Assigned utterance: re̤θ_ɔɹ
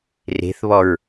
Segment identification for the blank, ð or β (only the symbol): β